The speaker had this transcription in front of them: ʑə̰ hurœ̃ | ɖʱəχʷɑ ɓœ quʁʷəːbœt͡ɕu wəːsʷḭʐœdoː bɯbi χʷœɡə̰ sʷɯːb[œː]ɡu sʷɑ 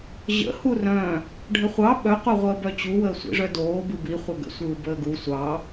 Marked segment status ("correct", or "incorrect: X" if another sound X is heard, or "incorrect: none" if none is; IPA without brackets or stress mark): incorrect: əː